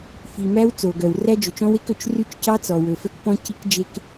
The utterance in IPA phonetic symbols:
fi˩ mæ˦˥wt͡so˩ɡœ˩w ræ˦˥d͡ʒɵ˩t͡ʃɔ̃˦˥we˦˥k ɵ˩t͡ʃry˦˥t͡ʃcɑ˦˥t͡sɔ˩ wɵ˩fœ˦˥k pɔ̃˦˥ci˦˥kd͡ʒe˦˥k

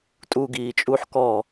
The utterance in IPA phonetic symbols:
tʼuɡiː t͡ʃʼuħ kɔ

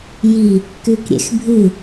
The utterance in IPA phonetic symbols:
ji | kʉkɾʲḛxbʱɨ

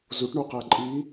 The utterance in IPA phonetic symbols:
zuʈɳuqæ ǃʼi

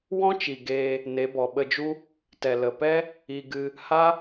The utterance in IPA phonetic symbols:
wɔ̃˦t͡ʃi˨ ɡeː˧ | ne˨˦bɔ˨ɓə˧d͡ʒu˦ | tɛ˨lə˨pɛ˦ | i˧ɡɨ˧ | ha˦

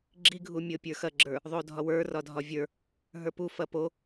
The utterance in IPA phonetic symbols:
ɡ͡ǁiɡʱumʲɤ pʲə˞xɐɡ͡ǁə˞ | ðˤodʱɒwə˞ rɒdʱɒvʲə˞ | ɦə˞pu fɐpo

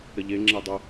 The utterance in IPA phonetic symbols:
ɾəʎe ŋ͡ǁedˤə

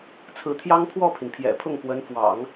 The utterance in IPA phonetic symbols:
t͡sʰɹ̩˧˥t̪ʰjɑ˥ŋpʰwɔ˥˩pʰi˩n pʰjɛ̰˨˩pʰʊ˥˩ŋkwə˧˥n fwɑ̰˨˩˦ŋ

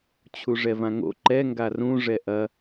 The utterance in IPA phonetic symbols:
t͡ɕʰuʐɛvãŋo̰ ǃɛ ŋɡarũ ʐɛʔɐ

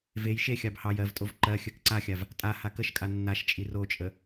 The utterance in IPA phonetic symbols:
vej ʃe xʲɑbhɑj ɜvtʼov ǃɜ xʲɜkǀaxʲav | tʼa hakəʃkʼa nːaʃ t͡ʃʼirot͡ʃʼə

